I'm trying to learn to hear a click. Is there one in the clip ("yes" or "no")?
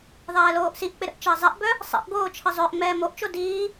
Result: no